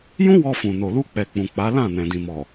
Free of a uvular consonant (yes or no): yes